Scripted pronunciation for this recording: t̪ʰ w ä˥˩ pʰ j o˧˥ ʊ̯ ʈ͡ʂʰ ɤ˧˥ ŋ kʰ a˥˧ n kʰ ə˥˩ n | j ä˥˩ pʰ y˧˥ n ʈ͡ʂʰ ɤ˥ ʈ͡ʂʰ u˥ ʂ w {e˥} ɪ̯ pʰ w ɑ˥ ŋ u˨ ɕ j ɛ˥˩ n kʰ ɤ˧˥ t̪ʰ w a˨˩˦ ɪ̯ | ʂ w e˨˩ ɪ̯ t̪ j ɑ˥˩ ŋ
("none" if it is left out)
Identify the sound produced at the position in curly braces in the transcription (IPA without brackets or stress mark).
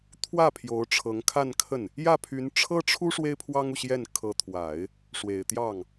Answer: e˥